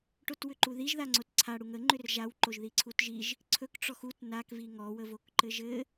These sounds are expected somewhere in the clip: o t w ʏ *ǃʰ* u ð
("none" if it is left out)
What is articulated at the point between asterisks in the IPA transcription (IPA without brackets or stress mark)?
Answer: ǃ